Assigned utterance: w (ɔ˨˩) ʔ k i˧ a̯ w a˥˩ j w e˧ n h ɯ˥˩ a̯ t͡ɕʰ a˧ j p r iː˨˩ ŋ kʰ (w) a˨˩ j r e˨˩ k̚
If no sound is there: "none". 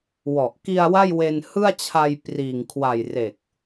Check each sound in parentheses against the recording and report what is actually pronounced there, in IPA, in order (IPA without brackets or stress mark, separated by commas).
ɔ˨˩, w